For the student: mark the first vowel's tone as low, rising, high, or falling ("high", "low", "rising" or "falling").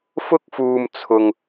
high